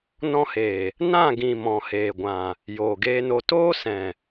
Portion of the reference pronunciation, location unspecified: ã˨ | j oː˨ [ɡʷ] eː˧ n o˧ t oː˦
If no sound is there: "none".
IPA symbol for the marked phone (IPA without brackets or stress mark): ɡ